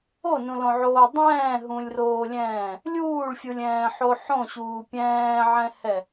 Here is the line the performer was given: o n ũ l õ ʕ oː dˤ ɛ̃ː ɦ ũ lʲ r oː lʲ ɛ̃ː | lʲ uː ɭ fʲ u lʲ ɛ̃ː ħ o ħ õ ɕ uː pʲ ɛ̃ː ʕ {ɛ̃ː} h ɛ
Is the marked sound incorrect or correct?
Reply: incorrect